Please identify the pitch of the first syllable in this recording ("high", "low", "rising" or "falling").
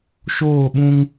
falling